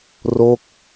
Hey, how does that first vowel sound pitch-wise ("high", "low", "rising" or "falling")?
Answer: falling